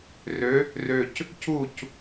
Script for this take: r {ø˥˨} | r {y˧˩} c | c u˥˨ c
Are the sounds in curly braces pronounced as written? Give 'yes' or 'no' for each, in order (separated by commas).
no, no